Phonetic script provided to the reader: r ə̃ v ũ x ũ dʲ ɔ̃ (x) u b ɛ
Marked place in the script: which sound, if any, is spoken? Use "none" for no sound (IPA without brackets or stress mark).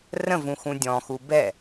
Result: x